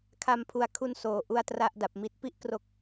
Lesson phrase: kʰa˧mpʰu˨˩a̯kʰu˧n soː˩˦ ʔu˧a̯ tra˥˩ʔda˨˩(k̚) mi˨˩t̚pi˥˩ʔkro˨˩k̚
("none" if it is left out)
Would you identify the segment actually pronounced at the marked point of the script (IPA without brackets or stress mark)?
p̚